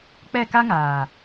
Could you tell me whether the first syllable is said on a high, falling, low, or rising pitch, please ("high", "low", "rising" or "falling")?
falling